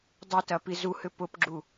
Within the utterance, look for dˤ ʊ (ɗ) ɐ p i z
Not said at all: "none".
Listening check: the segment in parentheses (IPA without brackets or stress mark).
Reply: t